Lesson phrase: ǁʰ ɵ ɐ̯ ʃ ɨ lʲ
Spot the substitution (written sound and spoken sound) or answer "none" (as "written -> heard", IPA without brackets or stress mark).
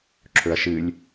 none